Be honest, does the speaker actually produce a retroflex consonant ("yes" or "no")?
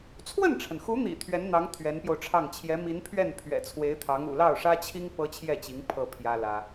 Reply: yes